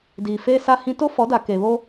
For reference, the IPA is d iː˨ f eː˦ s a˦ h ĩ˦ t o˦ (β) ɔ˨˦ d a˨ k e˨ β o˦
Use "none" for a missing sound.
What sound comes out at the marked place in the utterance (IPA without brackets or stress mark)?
f